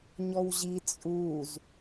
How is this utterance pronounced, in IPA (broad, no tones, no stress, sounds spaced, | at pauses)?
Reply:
ɲ ɔ w ʑ i t͡sʼ u z